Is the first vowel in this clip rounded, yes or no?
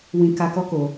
no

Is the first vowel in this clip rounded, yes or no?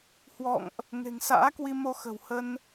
yes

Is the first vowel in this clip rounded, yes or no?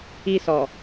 no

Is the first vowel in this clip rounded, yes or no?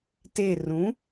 no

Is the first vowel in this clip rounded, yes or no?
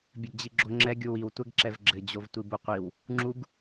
no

